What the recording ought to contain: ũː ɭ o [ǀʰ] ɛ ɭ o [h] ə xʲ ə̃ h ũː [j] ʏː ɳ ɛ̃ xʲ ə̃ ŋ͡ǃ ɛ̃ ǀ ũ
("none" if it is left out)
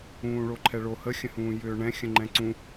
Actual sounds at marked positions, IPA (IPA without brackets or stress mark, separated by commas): ǃʰ, h, j